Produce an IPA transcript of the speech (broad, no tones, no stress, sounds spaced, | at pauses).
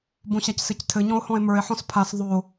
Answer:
b õ ɕ a c s ɘ c tʰ ɘ ɲ ɔ̃ o̯ h ɔ̃ e̯ m ə˞ e̯ ħ ɔ̃ s pʰ a s ðˤ o